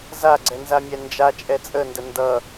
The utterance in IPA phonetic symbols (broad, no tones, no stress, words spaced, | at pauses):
zaɡ͡ǀɛ nzamʲɛnd͡ʒat͡ʃʼɛ t͡sʼəndə ndʌ